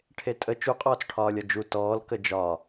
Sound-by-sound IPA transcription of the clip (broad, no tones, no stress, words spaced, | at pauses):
ʈʰetʼə t͡ʃuqʼɔːt͡sʈʰɒːlʲɒ d͡ʒu tɔːl kəd͡ʒɒ